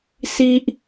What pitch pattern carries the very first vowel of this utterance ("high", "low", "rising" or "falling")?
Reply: high